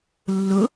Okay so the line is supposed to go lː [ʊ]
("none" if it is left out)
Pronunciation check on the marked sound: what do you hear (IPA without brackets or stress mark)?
ʊ